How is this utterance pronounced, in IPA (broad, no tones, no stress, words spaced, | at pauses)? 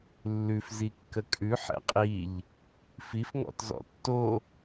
lːʉf zikːəkʼʉ ħɛ̰qʼiʎ | fif ŋɔ̰tzɔ̰tːo